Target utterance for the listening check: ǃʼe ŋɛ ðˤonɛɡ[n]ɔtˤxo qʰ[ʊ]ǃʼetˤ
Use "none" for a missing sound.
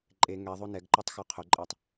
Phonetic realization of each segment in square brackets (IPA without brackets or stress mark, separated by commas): ǃ, ʊ